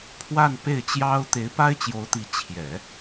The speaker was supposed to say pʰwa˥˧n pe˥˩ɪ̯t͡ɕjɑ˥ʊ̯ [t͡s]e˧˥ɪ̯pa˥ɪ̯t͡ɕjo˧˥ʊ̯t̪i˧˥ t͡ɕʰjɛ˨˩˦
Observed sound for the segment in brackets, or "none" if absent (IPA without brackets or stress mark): t̪